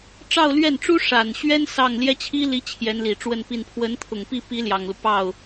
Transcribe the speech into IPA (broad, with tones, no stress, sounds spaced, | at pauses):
ʈ͡ʂ ɑ˥˧ ʊ̯ l ɥ ɛ˥˩ n ʈ͡ʂ u˥ ʂ a˨˩ n ɕ ɥ ɛ˥ n s ɑ˥˩ ŋ l j ɛ˥ t͡ɕʰ i˥ l i˧˥ t͡ɕʰ j ɛ˧˥ n l i˨˩ ʈ͡ʂ w ə˥˧ n p i˥˩ n pʰ w ə˧˥ n t̪ʰ ʊ˨˩ ŋ p i˥˩ p i˧˥ l j ɑ˨˩ ŋ l u˦ p ɑ˥˩ ʊ̯